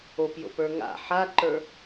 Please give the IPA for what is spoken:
opjo̰pə˞ ŋa̰ ħaǃə˞

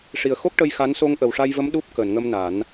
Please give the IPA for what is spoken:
ʂi˨˩ə̯xo˦˥k̚ ʈə˧jxa˧˥n so˧ŋʔə˨˩wʂa˧jvə˧˥m ɗu˦˥p̚ kəː˨˩˨nŋə˧mna˨˩˦n

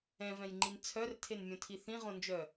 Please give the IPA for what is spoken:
ɛ̃vɛ̃jŋ͡ǃin t͡sʰœrtʰenmʲõtʰi θĩʁõnd͡ʒœ

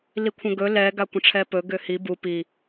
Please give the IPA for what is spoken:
likʷʰə̃ɡɵ lɛ ɡakʷə̃ʈ͡ʂʰɛpɵ ɡʏhi bu pi

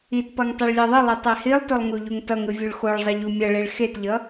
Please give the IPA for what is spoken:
itpʌŋ tˤɛɭlʲɛðˤɯlˠi tˤɛhilˠtolˠ ŋuʎuŋtʌŋɯ vʲuɭxoɭzˤʌ ʎumʲʌɭeɭ xetʎʌ

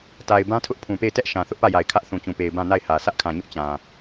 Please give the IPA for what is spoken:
ta˨ɪ̯ bã˦tʰʊ˦ʔ pʰũ˨pe˦˨ɪ̯ tɛ˦ʔ ʃã˨θʊ˦ʔpä˦˨ja˨ɪ̯ kʰä˦ʔθũ˨t͡ɕũ˨pe˨ɪ̯ bã˦˨na˦˨ɪ̯hä˨ sʰä˦ʔkʰã˨ɲʊ˦ʔ t͡ɕã˨

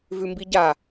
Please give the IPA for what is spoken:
vʉmbiɟa

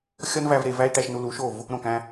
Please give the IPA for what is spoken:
xʲɒ˦nvæ˧v ɾe˧væ˦i̯ ʈæ˧ʃnu˧lu˨˦ʃo˦˨v | ɾõ˦˨kæ̃˦

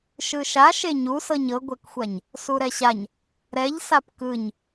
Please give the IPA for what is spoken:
ʃɯʃa ʃeɲusɤɲ ɤɡʷɛkxʷaɲ | suɾɛɕaɲ | ɾɛʎ sapkɯɲ

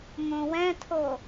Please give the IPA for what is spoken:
ŋõwɛ̃tʰo

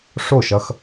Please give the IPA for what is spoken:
ʂo˥˩ʃʌ˧x

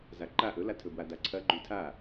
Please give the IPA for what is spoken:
zaǃa ʔɵlatʰɵbwa daǀʰɐ ɡ͡ǃʉtʰa

